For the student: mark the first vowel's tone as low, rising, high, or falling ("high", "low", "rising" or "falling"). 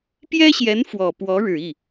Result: high